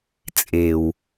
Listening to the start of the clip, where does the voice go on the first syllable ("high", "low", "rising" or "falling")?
low